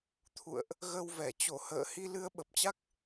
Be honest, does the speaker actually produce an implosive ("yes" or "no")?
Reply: yes